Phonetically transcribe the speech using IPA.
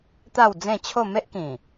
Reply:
t̪a˥˧wd͡zẽ˥˧t͡ɕʰo˥˧ me˦ʔkĩ˨˩

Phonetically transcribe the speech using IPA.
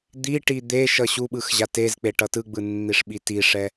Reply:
d̪iʈi d̪e ʃʌɕuɓɯx ʑatezk͡pe ʈʌtɯɡ͡bɯ nːiʂɓitiʂɛ

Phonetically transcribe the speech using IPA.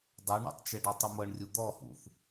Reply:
dˤuɳɔ̰tˤt͡ʃɛɖ ɔtˤɯmɤɳrʲu d̪ɔhṵθ

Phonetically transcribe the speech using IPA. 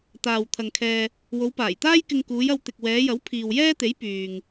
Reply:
t̪aː˨w t̪ʰɐ˧ŋkʰɛː˧ | wo˨˧wpaː˨˩jt̪aː˥jkɪ˧ŋ kuː˨˧jɐ˧wt̪ɪ˨k̚ wɛː˨˧jɐ˨˥w pʰiː˨wjɛː˥t̪e˨˥j pyː˨ŋ

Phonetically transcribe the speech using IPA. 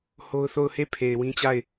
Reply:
ho˦ʊ̯θo˦˨ʊ̯ he˦˨pʰe˨ɪ̯ wĩ˦t͡ɕa˦˨ɪ̯

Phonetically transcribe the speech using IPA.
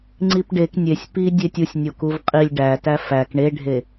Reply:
ŋ͡ǀipɖek nʲesʲ pi dʲetʲusʲ nʲokuvqʼilʲ ɖætæ fæk ɳeɖʱe

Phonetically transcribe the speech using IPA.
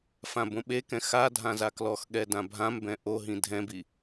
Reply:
fãbõɓekɛ̃ xadʱã zaklɔxɠɛ dãbʱãmbɛ̃ ʔoɦĩ dʱɛ̃bi

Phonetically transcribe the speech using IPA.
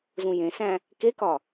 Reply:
zũjẽsæ̃ | kekɒ

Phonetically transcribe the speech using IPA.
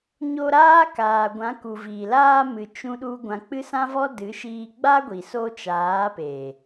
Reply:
ɲo˧ ɾaː˦kaː˨ɡʷã˨˦ ku˨viː˨laː˧mɨ˨ t͡ʃũ˧ ɗu˦ɡʷã˧ k͡pɨ˦sã˦vɔ˦ dɨ˨˦ʃiː˧ ɡ͡ba˦ɡʷi˨ so˧ t͡ʃaː˨˦pe˨

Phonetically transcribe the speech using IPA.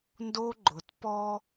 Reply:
ndo˦ɡ͡ǃʊ˨t pɔ˦

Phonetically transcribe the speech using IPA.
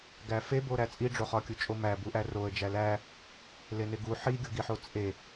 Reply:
ɡæfeboɾæ t͡sʼiɖ͡ʐo χɒkʲut͡ʃʼomæ buʔæroə̯d͡ʒæ læ | leneɡu ħiɡʲoɡiħo t͡sʼe

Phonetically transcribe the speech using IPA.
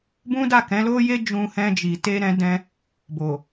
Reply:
bũ˦ da˦˨kɛ̃˨˦lo˦je˦ d͡ʒũ˧hɛ̃˧d͡ʒi˨ te˧ɾɛ̃˧dɛ̃˧ | bo˨

